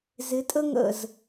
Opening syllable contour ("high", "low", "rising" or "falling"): rising